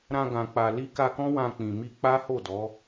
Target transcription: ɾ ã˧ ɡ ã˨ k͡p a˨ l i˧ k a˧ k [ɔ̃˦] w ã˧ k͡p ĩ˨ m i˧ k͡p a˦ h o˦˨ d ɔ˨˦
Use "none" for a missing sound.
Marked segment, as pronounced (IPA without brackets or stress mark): ɔ̃˦